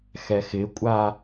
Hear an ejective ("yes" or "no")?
yes